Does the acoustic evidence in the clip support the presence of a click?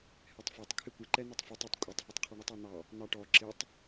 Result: yes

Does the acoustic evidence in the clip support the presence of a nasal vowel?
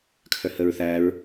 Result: no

